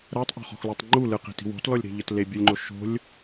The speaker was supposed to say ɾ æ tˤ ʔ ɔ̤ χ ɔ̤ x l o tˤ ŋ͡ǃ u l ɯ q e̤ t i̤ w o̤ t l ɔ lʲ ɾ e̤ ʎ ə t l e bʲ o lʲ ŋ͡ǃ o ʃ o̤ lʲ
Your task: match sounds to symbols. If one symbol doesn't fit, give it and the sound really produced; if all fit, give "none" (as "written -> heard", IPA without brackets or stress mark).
none